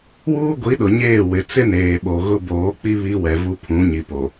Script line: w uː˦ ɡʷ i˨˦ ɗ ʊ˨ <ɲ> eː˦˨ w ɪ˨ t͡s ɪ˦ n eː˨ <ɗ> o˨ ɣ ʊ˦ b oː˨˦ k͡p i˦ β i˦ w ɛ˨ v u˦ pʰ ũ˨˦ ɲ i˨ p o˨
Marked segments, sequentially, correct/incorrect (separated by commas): correct, incorrect